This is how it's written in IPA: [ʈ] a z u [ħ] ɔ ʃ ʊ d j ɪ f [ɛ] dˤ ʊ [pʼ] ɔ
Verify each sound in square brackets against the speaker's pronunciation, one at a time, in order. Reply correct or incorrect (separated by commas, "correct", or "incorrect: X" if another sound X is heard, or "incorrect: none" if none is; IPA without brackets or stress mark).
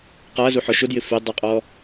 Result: incorrect: q, correct, correct, incorrect: qʼ